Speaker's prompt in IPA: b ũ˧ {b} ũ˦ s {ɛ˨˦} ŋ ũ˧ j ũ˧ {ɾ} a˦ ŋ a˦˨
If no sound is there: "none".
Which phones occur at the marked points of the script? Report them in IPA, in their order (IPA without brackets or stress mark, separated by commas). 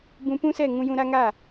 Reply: p, ɛ˦˨, ɾ